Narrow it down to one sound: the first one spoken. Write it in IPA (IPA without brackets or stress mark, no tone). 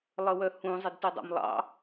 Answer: lˠ